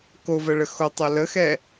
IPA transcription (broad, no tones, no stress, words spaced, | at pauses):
ko vɜɭəxo tˤɜləxɛ